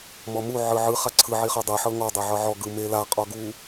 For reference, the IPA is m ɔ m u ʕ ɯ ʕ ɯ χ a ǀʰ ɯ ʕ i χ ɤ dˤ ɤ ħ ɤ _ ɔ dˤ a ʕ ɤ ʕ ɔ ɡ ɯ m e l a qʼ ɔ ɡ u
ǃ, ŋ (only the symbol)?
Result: ŋ